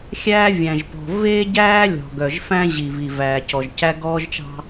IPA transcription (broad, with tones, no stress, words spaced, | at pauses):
xʲæː˦vʲæ̃˨ʒpɔ̤˨ ve˦ɟæː˦ lʲɔ̤˨ɡœ˨ʒfæ̃˦ʑi˨ vi˨væː˨cɔ˨ʒcæ˦ ɡɔː˦ʒt͡ʃɑ̤˦